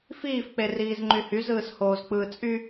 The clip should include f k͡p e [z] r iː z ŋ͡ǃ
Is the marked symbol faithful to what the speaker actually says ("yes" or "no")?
no